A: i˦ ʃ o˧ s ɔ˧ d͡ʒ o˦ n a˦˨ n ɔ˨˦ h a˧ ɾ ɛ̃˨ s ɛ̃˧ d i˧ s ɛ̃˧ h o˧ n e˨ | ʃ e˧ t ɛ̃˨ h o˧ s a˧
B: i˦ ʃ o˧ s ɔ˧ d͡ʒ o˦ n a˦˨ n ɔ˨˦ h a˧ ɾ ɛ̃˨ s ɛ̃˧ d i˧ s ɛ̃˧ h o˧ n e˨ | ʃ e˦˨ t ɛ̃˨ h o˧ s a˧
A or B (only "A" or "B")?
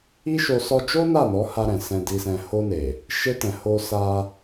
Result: A